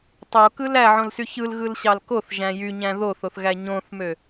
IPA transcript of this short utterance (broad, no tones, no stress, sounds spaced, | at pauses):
tˤ o k ɯ l æ ʕ õ l s y ç ɯ l ɣ ɯ l ɕ ɑ l k o θ ʒ æ̃ j y ɲ æ̃ ð o θ o θ ɣ æ ɲ õ θ m ø